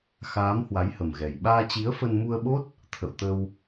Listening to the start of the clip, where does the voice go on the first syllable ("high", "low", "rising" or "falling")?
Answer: rising